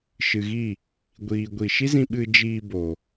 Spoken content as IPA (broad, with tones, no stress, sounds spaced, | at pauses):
ʃ ɨ˨ ɣ i˦˨ | ɡʷ iː˨ ɡʷ i˨ ʃ i˦ z ĩ˧ ɓ ɨ˨ d͡ʒ iː˧ b o˨